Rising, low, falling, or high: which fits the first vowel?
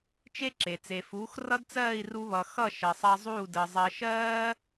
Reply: high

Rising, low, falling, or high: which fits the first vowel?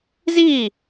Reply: falling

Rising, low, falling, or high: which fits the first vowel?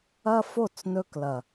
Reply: high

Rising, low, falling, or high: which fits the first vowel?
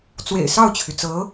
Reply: low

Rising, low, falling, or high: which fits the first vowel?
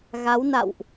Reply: rising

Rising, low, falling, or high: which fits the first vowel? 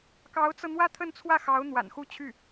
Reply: rising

